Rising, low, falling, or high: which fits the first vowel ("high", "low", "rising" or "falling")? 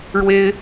high